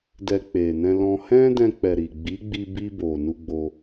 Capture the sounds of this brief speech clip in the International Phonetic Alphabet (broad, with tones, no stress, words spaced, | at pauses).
dɛ˧k͡pe˨nɛ̃˧lɔ̃˧ hɛ̃˦dɛ̃˧k͡pɛ˨ ɾi˨ɡ͡bi˨˦ ɡ͡bi˧bi˧bo˨ nu˧ɡ͡bo˧